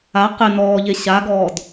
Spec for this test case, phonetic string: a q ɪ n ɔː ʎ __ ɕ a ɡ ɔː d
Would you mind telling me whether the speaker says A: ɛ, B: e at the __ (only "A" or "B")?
B